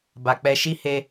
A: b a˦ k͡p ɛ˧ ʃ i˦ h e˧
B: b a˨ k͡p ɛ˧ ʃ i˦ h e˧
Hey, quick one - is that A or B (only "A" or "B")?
B